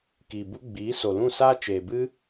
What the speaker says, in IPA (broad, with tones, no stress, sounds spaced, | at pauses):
k iː˨ b u˧ ɡ͡b iː˨˦ s o˨ l ũ˦˨ s aː˦ t͡ʃ eː˨ b ɨ˦